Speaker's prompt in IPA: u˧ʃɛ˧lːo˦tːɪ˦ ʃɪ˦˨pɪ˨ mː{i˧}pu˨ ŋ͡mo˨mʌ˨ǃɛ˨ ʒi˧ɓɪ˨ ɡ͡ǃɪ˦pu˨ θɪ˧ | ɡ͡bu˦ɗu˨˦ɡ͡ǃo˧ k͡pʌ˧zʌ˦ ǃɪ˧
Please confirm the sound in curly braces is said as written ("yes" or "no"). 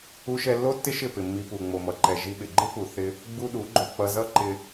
yes